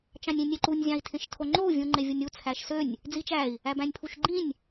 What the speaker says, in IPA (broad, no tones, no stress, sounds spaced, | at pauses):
t͡ʃ ɑ̃ nʲ ĩ nʲ e ǃ u nʲ zʲ ɑ̃ i̯ tʰ ẽ ʃ tʰ o ŋ͡ǃ o u̯ vʲ ũ ŋ͡ǃ e vʲ o nʲ u t͡sʰ æ ʃ s ø nʲ | d͡z i t͡ʃ æ i̯ | æ b æ̃ nʲ pʰ u ʃ ɡ͡ǃ ĩ nʲ